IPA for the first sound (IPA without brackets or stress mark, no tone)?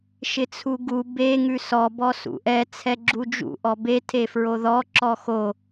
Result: ʃ